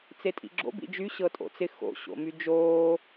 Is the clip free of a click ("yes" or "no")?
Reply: no